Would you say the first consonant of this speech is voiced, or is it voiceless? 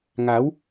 voiced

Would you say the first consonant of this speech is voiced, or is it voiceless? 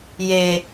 voiced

